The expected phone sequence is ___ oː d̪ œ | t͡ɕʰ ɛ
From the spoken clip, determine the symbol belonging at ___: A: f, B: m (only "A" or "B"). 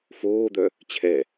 A